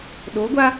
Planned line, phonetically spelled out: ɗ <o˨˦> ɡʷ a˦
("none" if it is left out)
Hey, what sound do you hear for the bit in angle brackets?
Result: o˨˦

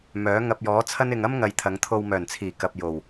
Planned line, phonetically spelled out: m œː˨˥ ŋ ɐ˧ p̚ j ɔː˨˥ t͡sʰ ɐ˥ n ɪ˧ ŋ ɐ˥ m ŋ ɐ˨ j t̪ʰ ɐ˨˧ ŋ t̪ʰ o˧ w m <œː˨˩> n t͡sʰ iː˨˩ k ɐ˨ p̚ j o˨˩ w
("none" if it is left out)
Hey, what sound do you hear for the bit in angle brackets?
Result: œː˨˩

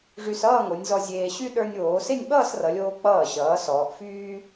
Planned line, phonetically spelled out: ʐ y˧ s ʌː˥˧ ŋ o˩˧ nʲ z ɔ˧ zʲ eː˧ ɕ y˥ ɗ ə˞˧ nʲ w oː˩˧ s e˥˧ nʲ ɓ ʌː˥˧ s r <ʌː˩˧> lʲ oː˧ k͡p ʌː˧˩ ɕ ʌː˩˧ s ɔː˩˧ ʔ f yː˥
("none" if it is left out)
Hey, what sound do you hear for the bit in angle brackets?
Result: ʌ˩˧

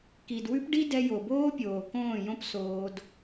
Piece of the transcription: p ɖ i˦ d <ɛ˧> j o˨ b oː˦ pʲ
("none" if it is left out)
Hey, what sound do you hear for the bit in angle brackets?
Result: ɛ˧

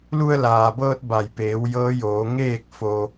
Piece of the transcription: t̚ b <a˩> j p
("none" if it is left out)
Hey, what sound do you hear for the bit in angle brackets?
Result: a˧˩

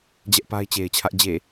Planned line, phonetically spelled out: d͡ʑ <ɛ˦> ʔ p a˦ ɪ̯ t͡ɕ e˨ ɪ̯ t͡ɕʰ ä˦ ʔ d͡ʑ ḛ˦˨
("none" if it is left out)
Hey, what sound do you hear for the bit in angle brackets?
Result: ɛ˦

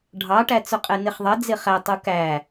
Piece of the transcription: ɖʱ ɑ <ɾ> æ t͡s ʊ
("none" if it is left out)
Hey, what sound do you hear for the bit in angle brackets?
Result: ʈ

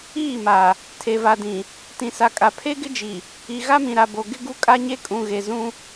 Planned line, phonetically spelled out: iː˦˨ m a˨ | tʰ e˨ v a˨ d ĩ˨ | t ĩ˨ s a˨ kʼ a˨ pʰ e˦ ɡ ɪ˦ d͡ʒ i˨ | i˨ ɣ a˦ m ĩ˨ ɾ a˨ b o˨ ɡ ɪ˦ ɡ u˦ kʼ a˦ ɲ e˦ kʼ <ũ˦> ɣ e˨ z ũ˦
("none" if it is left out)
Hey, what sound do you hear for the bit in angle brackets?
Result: ũ˨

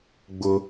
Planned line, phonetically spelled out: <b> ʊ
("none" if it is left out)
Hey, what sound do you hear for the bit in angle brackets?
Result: ɡ͡b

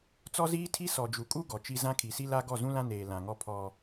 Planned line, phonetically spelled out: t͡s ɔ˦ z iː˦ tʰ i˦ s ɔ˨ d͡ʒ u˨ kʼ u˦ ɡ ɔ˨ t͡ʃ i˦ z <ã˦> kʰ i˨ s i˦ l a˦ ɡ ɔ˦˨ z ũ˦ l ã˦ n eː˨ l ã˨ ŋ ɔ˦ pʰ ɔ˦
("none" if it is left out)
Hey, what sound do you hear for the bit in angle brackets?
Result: ã˦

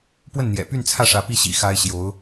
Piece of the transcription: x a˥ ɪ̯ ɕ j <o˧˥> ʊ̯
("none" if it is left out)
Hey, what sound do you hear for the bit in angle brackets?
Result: o˧˥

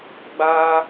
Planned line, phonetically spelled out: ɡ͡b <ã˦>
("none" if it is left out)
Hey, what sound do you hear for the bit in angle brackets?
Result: a˦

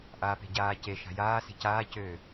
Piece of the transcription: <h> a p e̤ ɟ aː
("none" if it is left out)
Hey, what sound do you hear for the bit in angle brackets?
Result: ʔ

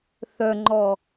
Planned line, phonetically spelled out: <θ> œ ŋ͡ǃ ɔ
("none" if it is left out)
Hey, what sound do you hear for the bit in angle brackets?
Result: θ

